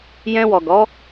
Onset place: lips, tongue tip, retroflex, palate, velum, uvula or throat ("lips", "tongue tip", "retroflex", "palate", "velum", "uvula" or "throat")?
palate